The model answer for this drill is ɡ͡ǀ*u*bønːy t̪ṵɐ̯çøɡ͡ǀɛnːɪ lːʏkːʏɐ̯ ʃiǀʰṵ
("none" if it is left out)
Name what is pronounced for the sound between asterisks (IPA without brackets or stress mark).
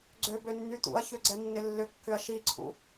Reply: ø